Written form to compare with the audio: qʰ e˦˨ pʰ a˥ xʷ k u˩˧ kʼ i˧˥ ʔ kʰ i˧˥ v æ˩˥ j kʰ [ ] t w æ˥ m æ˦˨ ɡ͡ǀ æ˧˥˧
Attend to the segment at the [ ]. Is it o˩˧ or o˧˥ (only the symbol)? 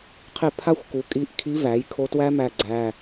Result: o˧˥